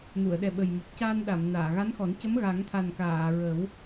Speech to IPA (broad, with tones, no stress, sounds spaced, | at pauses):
n u˨˩˨ ə̯ ɗ ɛ˨˩ ɓ ə˨˩ j m o˨˩ p̚ c aː˧ n ɗ a˨˩˨ m n aː˨˩˨ ɣ a˧˥ n x ɔ˨˩˦ n c ə˧˥ m ɣ a˨˩˦ ŋ t̪ʰ a˨˩ n k aː˨˩˨ ɹ ə˨˩˦ w